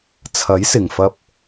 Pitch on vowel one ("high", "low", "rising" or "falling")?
rising